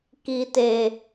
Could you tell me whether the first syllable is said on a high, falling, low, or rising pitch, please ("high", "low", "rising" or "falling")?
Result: low